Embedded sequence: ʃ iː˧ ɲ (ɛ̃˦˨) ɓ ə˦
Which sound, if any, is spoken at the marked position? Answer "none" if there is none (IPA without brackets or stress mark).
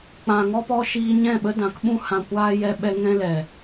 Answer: ɛ̃˦˨